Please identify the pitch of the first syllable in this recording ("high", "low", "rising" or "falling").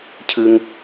high